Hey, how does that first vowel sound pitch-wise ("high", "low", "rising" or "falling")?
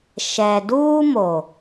low